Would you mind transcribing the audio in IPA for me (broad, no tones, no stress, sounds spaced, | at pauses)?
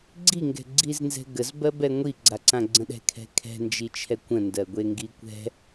ɡ͡ǀ i ŋ ɡ ɛ̤ ɡ͡ǀ i z n z ɛ̤ ɡ ə z b ɜ b ɛ ŋʷ i ɡ͡ǀ a ǀ ã ɡ͡ǀ ə̃ ɗ ɛ̤ kʰ ɛ̤ kʰ ɛ̤ n d͡ʒ i t͡ʃʰ ɛ kʷ ə̃ n d ɜ ɡʷ e ŋ ɡ i kʷ ɛ̤